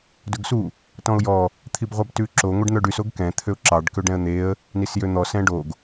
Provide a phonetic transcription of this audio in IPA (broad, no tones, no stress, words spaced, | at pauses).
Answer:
dɵɡsu | tɔ̃ʊ̯jɔ | t̪ʰibʁʷɑbtʉǁo ŋʷɛɖn̪œɖys oɡkɛ̃ t̪ʰøʊ̯ǁɑɖ køɖɛ̃ə̯n̪eə̯ | nisjøn̪ɔ sɛ̃ɖoɡ